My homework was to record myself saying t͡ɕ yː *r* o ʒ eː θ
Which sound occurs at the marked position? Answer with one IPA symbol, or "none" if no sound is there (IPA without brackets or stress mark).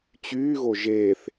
ɣ